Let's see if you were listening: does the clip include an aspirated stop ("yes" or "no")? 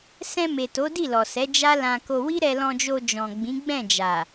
no